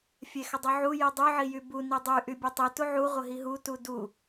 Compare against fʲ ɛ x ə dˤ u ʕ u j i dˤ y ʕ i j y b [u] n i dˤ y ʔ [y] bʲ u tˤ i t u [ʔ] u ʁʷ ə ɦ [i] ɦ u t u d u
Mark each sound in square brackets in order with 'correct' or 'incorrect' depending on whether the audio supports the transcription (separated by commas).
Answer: correct, correct, incorrect, correct